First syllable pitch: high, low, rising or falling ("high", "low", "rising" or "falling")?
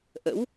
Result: rising